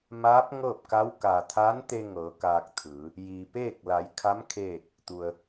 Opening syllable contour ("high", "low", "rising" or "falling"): rising